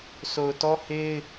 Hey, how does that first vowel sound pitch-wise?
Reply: low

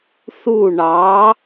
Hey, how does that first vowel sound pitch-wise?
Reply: falling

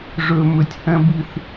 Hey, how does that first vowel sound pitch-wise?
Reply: low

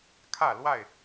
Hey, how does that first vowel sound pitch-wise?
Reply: falling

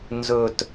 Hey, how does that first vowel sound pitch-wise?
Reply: low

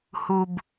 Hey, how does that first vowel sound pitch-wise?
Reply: low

